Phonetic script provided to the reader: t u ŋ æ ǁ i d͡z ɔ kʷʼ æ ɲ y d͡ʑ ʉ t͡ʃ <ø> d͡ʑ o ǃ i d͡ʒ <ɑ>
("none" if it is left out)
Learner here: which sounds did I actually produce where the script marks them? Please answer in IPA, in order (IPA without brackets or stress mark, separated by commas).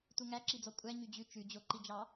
ʉ, ɑ